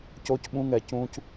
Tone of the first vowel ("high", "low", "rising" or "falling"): high